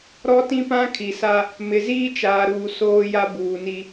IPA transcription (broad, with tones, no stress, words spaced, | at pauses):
ɾɔ˦ tĩ˦pã˦kʰi˨sa˦ | mɪ˨ziː˦t͡ʃaː˨ɾuː˨ soː˦ja˦ buː˨ni˦